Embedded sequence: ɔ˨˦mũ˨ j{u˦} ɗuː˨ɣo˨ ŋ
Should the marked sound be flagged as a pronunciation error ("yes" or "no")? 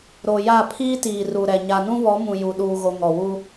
yes